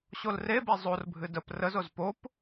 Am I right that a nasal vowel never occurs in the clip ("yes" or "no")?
yes